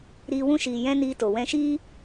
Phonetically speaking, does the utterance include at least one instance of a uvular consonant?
no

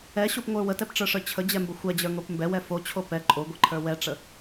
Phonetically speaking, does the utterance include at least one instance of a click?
yes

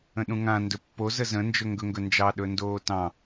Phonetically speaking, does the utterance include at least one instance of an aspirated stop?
no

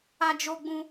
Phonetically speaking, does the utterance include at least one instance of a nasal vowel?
yes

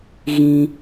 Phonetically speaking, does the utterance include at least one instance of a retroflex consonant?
no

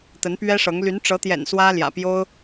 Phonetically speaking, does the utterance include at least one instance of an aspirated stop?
no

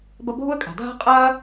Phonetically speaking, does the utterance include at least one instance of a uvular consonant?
yes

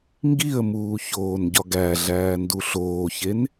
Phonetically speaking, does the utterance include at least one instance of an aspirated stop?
no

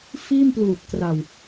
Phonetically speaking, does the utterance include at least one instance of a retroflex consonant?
no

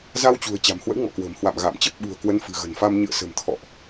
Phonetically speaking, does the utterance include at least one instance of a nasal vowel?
no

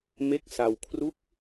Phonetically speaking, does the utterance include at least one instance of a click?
no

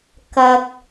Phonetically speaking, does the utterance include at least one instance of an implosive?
no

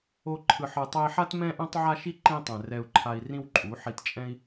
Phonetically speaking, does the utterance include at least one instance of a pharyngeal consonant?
yes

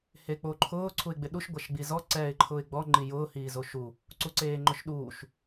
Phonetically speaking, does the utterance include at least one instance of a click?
yes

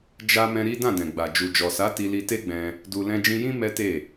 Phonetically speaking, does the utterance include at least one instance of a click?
no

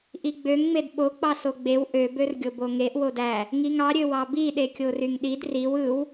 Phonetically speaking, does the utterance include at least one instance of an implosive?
yes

